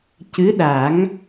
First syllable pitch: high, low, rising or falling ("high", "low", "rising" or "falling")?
rising